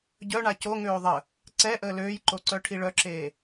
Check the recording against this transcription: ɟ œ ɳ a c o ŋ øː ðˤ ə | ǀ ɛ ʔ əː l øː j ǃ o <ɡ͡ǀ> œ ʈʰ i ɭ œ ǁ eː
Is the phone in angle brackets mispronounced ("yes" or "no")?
yes